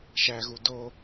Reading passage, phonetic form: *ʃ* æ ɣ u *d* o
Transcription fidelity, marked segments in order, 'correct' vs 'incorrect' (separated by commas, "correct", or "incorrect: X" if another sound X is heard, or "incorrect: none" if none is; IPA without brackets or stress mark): correct, correct